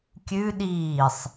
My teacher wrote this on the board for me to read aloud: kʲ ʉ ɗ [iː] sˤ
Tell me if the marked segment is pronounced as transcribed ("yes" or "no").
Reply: yes